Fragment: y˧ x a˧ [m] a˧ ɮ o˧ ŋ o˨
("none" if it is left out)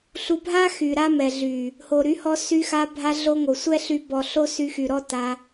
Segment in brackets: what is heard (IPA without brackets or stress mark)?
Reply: bʱ